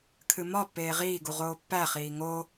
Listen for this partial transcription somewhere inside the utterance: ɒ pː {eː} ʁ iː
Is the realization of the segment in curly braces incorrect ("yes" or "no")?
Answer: no